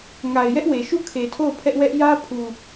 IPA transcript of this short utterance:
ŋ a˨ ɪ̯ j ɛ˦ ʔ w e˨ ʃ u˦˨ kʰ e˨ tʰ o˦˨ ʊ̯ pʰ ɛ˦ ʔ w ɛ˦ ʔ j ä˦ pʰ u˨

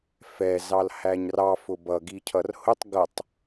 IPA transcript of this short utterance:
f ɛ z ɑ l h æ ɲ r ɑ f ʊ b ʌ ɡ i cʰ ʌ r h ʊ tˤ ɡ ʌ tˤ

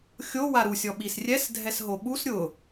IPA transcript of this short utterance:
xʲ o w a ɾ u sʲ ɔ ɓ i s rʲ ɛ s dʱ ɛ s ɦ o ɓ u s ɾʲ ʊ

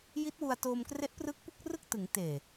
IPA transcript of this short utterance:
j i˦˥ t̚ w u˧ a̯ t oː˧ m k r e˦˥ ʔ p r ɯː˦˥ k̚ p u˥˩ k̚ r ɯ˥˩ k̚ t ɯ˩˦ ŋ t eː˨˩

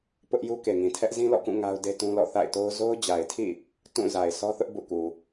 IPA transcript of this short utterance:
p ʊ˦ ʔ j u˦ k e˨ ŋ ĩ˨ tʰ ɛ˦ ʔ z ĩ˦ l ɔ̰˦˨ k ũ˦˨ ŋ a˦ ʊ̯ d e˦ t ũ˦ l ɔ̰˦˨ θ a̰˦˨ ɪ̯ t o˦ ʊ̯ z o˦ ʊ̯ d͡ʑ a˨ ɪ̯ tʰ ḭ˦˨ | t ũ˦˨ z a˨ ɪ̯ sʰ ɔ˦ θ ʊ˦ ʔ b ṵ˦˨ k u˨

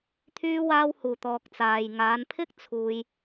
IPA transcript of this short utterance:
t̪ʰ yː˧ w aː˧ w h uː˨˩ t̪ ɔː˨ k̚ t͡s aː˨ j ŋ aː˨˧ n pʰ ɪ˥ k̚ t͡sʰ uː˧ j

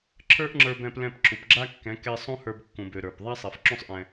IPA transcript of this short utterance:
ǁʰ ə˞˦ ʔ ŋ͡ǁ ə˞˧ b ɛ̃˧ p l ɛ̃˧ p ǁʰ u˨ p ɡ͡ǁ a˦ kː ɛ̃˨˦ k ɛ˧ sˤ ũ˦ h ə˞˧ b kː ũ˨ b ø˨ ɾ ə˞˨ p ðˤ a˦ sˤ ɛ˨ f ǁ ũ˦ sˤ ʔ ɛ̃˧

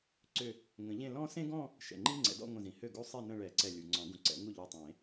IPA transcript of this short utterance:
ǀ ʏ˧˩ | ŋ ə̃˨˩˦ ʎ ẽ˥˧ l ɔ̃˥ s ẽ˥ ɡ ɔ̃˥˧ | ʃ ɛ̰˩ ŋ͡ǃ i˥ ŋ͡ǀ ɛ̰˨˩˦ d ɔ̰˥˧ ŋʷ ə̃˧˩ z ĩ˩ h ø˥˩ ɡ u˥ sˤ e˥˧ n ə̃˥˧ ɭ ɛ˨˩˦ ǀ ɛ˧˩ lʲ u˩ ŋ͡ǀ ɔ̃˨˩˦ ɡ ũ˩ ǀ ɛ̰˨˩˦ ŋ u˥˩ ʎ ø˧˩ tˤ ẽ˨˩˦

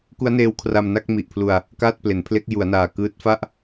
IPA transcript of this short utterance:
k u˦˥ a̯ n eː˦˥ w kʰ r a˧ m n a˥˩ k̚ m i˨˩ ʔ pʰ l u˧ a̯ | k aː˥˩ t̚ p l e˩˦ n pʰ l e˦˥ k̚ j u˩˦ a̯ n aː˨˩ k ɯː˦˥ t̚ f a˥˩ ʔ

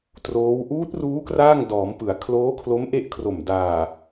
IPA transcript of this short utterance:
t r oː˦˥ w ʔ uː˦˥ t̚ r uː˦˥ k r aː˥˩ ŋ d ɔː˩˦ m p ɯ˩˦ a̯ kʰ l oː˦˥ kʰ l o˦˥ m ʔ e˦˥ ʔ kʰ r o˨˩ m d aː˨˩

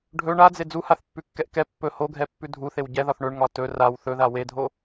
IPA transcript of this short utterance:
ɖʱ ɵ ɳ a d͡z e d͡z u h a θ pː ʉ kː ɛ ʔ k ɛ pː ɵ h o ɡʱ ɛ pː ʉ dʱ u θ e w ɟ ɛ ð ɒ θ ɳ ɵ ɳ ŋ ɒ t ɵ r a w θ ɵ ð a w e dʱ o

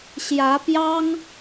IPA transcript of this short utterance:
ɕ j ä˧˥ p j ɑ˥ ŋ

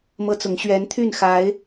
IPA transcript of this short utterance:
m ɤ˦ t͡s ʊ˨˦ ŋ ɕ ɥ ɛ˨˦ n t̪ʰ y˥˨ n x a˨˦ ɪ̯

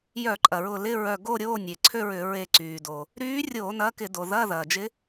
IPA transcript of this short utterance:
j œ˧˩˧ ǃʼ ɐ˩ ɹ ʊ˧˩ l ɪ˧˥˧ ɹ œ˧˩ ɡ o˥˧ ɾʲ oː˧˥˧ nʲ e˩ ǀʰ ø˥˧ ɹ ʏ˧˩˧ ɹ e˧˩ ǀ yː˩ d o˩ | ɾ yː˧˥ rʲ o˧˩˧ n ɐː˧˥ k ɪ˧˩˧ d o˩ ð ɐː˧˥˧ ð ɐː˩ d͡ʒ ɪ˧˥

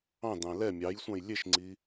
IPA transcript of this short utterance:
ɑ̃ d ɑ̃ l ɛ mʲ ɑ j sʷ ɑ̃ j lʲ e ʃ ŋ͡ǀ i

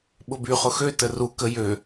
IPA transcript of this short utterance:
ɓ ʊ b y χ ʊ x ø t ə r u k ə j ø

